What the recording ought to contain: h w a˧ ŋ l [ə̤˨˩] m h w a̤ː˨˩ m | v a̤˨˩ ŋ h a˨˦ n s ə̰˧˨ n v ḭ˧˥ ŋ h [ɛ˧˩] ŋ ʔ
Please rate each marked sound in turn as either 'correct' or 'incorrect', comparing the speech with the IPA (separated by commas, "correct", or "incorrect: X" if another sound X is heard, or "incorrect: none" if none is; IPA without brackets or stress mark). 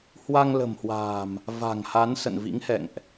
correct, incorrect: ɛ̰˧˨